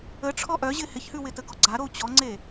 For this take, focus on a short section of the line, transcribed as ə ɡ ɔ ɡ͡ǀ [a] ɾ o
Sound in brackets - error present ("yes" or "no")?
no